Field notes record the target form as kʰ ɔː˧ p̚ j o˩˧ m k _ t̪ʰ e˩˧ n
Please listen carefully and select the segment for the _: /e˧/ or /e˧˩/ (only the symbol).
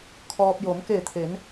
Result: e˧˩